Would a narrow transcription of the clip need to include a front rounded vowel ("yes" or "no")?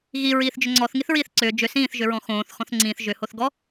yes